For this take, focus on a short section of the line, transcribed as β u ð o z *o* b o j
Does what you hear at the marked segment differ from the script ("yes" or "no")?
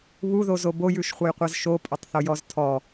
no